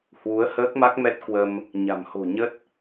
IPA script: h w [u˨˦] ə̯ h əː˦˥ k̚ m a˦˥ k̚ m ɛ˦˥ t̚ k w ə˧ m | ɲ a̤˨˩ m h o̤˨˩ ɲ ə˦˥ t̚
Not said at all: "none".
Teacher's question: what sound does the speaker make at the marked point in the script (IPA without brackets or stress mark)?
u˨˦